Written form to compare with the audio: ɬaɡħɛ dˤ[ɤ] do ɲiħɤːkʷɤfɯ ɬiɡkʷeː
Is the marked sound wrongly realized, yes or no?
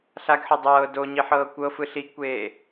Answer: yes